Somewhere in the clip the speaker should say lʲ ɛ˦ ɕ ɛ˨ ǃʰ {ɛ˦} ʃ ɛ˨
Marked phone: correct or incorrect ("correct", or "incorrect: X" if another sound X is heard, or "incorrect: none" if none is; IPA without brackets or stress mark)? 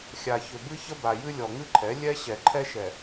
correct